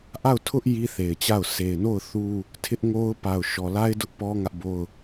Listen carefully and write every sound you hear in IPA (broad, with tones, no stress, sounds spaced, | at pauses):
ʔ a˦˨ ʊ̯ tʰ ʊ˦ ʔ j i˦ θ e˨ ɪ̯ t͡ɕ a˦˨ ʊ̯ sʰ e˨ ɪ̯ n o˦˨ ʊ̯ θ u˦ | tʰ ɪ˦ ʔ ŋ o˦ ʊ̯ p a˨ ʊ̯ ʃ ɔ˨ l a˦ ɪ̯ d ʊ˦ ʔ p ɔ˦ ŋ ä˦ ʔ b o˦ ʊ̯